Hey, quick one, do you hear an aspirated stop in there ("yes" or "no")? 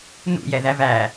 no